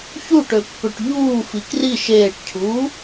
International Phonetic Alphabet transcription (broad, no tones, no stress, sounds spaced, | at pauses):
ç u ʈ ø pː ø ʈ ʎ uː f i k r i ʃ eː ʈ cʰ uː